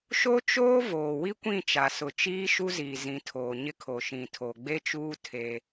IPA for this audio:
ʃ o˦ t͡ʃ oː˦ v oː˨ w i˦ kʷ ĩ˦˨ t͡ʃ a˨ s ʊ˨ t͡ʃ iː˦ ʃ u˦ z iː˨ z ĩ˨˦ tʰ oː˨ ɲ ɪ˦ kʰ o˨ ʃ ĩ˨ tʰ o˨ ɡ͡b e˦ t͡ʃ uː˦ tʰ e˦

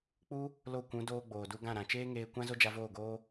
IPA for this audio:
k͡p u˦ | l o˦˨ kʷ ũ˨˦ d oː˧ ɡ͡b oː˨ d u˧ ɡ ã˦˨ ɾ ã˨ t͡ʃ eː˦ ŋ eː˧ kʷ ã˦ z o˦ d͡ʒ a˧ v oː˦˨ ɡ oː˦

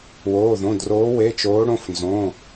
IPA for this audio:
w oː˩˧˩ ð õ˩˧˩ d r oː˨˦ w e˩˧˩ t͡ʃ oː˨˦ ɽ õ˩˧˩ f n z õ˩˧˩

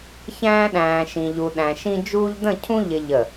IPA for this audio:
ç æ̃ː˥ ɗ æ̃ː˧ ʃ ĩ˧ ʎ u˧ ɗ æ̃˧ ʃ ĩ˥ d͡ʒ uː˥ ʎ d ə̃˥˧ cʰ ũ˥ ʎ ɪ˧ ʎ ə˧˩

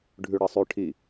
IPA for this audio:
ɖʱ ʉ ɽ ɐ sˤ ʉ ʈʰ i

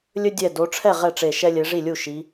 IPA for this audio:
lʲ ɵ˦ dʲ ɛ˧˩ d o˨˦ ʈ͡ʂʰ ɛ˥˩ ʁ ɛ˥˩ ʈ͡ʂ e˧˩ ʃ ɛ˦ lʲ e˨˦ ʐ i˥˩ lʲ u˥˩ ʃ i˨˦

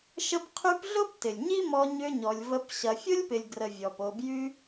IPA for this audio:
ʃ ə˦ p qʰ y˦ p ɮ ʊ˥ p t ɪ˩ lʲ ɲ i˥ m ɔ˦ ɲ ʏ˦ ɲ ɔ˨ lʲ v ə˦ p ɕ ɐ˨ fʲ ʊ˥ lʲ p ɪ˨ lʲ ɡ r ə˨ vʲ ɔ˩ p o˨ b j y˦

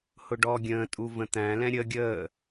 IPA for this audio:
h ʊ ɖ ɔ ɡʲ ə̃ː tʼ u v ə̃ t̪ æ̃ l ɛ̃ ɾʲ ə ɡʲ əː

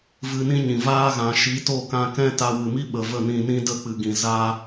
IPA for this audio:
v ɨ˧ n ĩ˦ ɲ ĩ˨ v aː˦ ɣ ã˨ ʃ i˨˦ t o˦˨ k ã˧ k ɛ̃˦ t a˧ w ɨ˨ m i˦ ɓ ə˧ v ə˦˨ n ĩ˧ n ĩ˦ d ə˦˨ k͡p ɨ˨ ɡ ĩ˨ z a˧

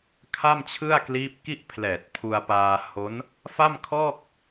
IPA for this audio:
kʰ a˥˩ m t͡ɕʰ ɯ˥˩ a̯ k l iː˦˥ p̚ k i˥˩ ʔ pʰ l ɛː˨˩ t̚ pʰ u˧ a̯ p aː˧ h o˦˥ n | f a˥˩ m kʰ ɔː˥˩ k̚

